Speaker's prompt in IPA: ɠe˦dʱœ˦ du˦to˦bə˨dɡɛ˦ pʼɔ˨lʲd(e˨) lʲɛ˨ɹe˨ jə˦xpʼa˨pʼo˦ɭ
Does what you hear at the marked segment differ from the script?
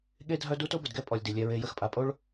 yes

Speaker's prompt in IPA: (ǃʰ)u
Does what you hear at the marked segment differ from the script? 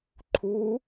no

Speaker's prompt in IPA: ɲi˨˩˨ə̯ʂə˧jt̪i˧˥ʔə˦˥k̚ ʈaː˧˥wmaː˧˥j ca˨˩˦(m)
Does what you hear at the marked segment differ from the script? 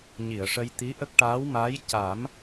no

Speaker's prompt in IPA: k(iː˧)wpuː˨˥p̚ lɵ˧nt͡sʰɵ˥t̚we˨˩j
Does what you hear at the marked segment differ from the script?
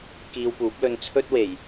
no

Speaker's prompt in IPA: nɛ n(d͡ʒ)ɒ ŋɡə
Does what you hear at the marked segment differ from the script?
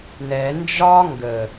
no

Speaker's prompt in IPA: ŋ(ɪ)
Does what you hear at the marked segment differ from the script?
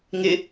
no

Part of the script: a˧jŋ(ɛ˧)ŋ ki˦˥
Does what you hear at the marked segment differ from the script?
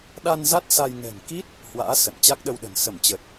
yes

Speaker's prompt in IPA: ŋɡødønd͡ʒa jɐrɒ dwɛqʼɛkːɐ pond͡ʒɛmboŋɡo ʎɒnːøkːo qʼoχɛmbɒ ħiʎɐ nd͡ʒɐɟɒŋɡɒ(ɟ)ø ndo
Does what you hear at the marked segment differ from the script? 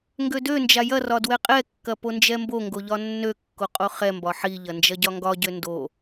no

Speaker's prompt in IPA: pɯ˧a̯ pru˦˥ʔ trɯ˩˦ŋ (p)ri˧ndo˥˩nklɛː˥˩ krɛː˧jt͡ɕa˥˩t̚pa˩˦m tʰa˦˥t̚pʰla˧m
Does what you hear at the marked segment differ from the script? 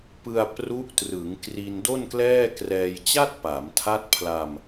yes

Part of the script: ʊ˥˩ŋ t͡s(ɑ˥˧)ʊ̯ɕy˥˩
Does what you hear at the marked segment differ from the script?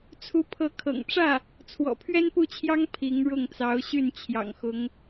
yes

